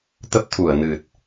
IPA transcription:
t̪ ə˦˥ p̚ t̪ʰ u˧˩ ə̯ n ɨ˨˩ t̚

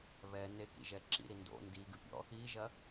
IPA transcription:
β ɛ n e k ḭ ʒ ɛ ǁ ḭ ɾ i n d o̰ n d i ɡ ɨ pʲ ɔ̰ | i ʒ ɐ

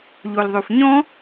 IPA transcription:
ʎ o l ðˤ o f ɲ ɔ̃

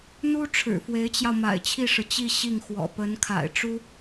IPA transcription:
n̪ u˥ ʈ͡ʂʰ ɻ̩˨˩ f w e˧˥ ɪ̯ t͡ɕ j ɑ˧ ʊ̯ m a̰˨˩ ɪ̯ t͡ɕʰ i˥˩ ʂ ɻ̩˩ t͡ɕ i˥˧ ɕ i˥˩ ŋ x w ɔ̰˨˩ p ə˧˥ n kʰ a̰˨˩ ɪ̯ ʈ͡ʂ u˥

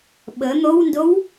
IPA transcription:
ɓ ə n̪ o w n d o w

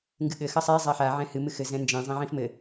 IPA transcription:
ŋ ɡ ɨ ɠ ɘ x ɐ sˤ e zˤ a ħ a ʕ ɛ̃ h ɨ m ɨ x ɘ z ɛ̃ n d͡ʒ ɛ̃ zˤ ɛ̃ ʕ ĩ f m ɘ

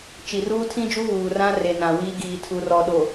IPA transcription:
t͡ʃ i˨ r uː˦ tʰ ĩ˦ d͡ʒ u˦ β uː˨ r ã˦ r e˨ n ã˨ w iː˦ ɡ iː˨ tʰ u˨ r ɔ˨ ɗ o˨

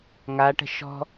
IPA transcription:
ŋ a ʈ ə̤ ʃ ɔ̤

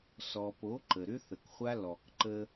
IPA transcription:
s ɔ˨ p o˨˦ ǃ ə˨ ɾ ʏ˦ θ ə˨ k χʷ a˦ l ɔ˨ k ǃ ə˦

